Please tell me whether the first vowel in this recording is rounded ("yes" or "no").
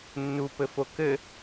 yes